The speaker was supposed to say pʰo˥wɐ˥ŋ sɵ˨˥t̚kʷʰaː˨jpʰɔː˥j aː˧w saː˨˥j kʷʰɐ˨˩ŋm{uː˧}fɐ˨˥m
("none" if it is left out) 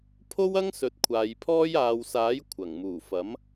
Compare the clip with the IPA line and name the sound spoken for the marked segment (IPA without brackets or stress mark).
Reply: uː˨˩